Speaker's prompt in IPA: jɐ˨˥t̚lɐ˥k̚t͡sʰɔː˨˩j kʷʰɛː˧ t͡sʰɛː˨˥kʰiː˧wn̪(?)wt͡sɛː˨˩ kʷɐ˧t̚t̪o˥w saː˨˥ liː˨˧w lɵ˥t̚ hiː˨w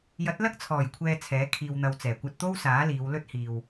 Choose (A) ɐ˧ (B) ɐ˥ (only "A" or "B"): A